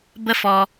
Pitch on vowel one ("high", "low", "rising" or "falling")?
high